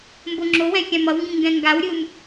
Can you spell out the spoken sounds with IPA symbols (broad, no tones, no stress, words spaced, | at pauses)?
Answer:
mboŋ͡ǁowɛ̃ xʲãmʌwŋɡĩ ŋɡɛ̃ŋɡawɾʲɯm